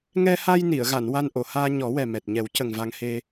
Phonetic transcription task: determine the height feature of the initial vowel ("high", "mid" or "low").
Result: mid